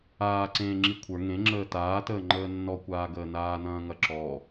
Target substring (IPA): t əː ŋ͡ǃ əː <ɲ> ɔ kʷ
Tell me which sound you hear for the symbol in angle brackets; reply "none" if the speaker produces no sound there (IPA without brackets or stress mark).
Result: nː